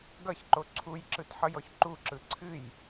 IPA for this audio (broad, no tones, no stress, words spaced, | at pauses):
ɡʌçǃo ǀʰujǁɯtħʌjɔç ǃuǁɯ ǀʰɨj